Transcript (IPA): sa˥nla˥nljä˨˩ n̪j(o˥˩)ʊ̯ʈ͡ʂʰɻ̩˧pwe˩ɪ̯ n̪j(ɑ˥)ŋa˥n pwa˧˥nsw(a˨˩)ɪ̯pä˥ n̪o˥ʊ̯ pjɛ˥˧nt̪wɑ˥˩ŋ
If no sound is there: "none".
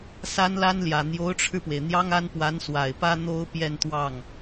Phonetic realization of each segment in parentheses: o˧˥, ɑ˥, a˨˩

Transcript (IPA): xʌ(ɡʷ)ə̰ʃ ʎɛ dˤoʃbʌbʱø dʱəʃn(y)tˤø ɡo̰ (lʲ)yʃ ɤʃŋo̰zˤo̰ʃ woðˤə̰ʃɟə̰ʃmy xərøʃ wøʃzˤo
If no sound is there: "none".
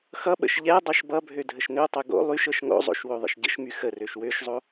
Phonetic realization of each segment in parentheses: ɓ, ø, lˠ

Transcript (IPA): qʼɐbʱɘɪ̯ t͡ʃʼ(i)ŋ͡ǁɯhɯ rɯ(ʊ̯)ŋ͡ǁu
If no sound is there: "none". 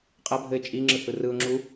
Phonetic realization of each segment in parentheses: i, ʊ̯

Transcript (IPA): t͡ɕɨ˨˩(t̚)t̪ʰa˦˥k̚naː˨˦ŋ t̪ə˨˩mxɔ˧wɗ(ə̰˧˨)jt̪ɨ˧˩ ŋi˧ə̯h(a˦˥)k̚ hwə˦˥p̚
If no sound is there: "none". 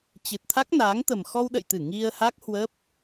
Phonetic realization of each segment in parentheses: t̚, ə̰˧˨, a˦˥

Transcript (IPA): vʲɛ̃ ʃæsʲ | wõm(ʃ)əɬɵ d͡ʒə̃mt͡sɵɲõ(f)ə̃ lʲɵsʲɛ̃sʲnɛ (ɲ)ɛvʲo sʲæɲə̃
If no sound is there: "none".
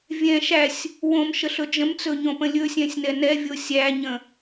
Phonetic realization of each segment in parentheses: ʃ, p, n

